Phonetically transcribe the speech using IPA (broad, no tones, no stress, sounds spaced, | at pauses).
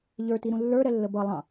ʎ ə˞ t i ɾ ũ lː ə˞ ɾ ɛ lː ə b ʌ lˠ ɑ̃